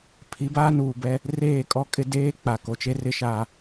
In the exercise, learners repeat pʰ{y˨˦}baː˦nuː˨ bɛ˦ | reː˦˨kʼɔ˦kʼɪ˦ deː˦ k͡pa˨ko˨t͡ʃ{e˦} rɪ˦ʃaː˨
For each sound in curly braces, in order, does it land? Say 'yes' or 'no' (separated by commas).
no, yes